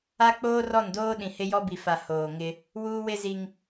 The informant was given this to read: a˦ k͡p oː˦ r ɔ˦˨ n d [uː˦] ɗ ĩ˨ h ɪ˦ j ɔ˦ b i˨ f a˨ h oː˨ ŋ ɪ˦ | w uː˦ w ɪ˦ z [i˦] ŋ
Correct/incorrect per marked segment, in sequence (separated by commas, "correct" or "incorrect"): incorrect, correct